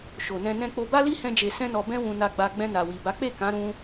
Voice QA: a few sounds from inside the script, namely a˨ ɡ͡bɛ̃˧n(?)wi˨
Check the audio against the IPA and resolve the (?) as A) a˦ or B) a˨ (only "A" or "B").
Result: B